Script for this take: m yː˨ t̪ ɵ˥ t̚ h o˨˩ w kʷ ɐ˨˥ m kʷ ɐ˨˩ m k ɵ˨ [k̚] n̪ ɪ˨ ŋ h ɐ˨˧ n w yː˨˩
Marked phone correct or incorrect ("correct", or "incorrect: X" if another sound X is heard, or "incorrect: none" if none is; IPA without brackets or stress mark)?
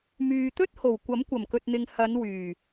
incorrect: t̚